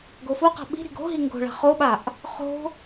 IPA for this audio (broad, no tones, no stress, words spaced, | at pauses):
ɡofuqa̤ ɓi̤ɾi̤ɡ o̤ɦi ŋɡo̤ɭa̤ χoɓaʔ | χo̤